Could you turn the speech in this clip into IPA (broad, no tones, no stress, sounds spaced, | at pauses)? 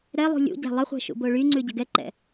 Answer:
ɾ ɛ lˠ ṳ lʲ ṵ ɟ æ̤ lˠ ə χʷ æ̤ ʃ ṵ b o ɭ y ŋ͡ǀ ʉ ɟ ə̤ ɡ ɛ ǃ ɛ̰